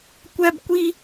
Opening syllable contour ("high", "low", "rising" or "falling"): high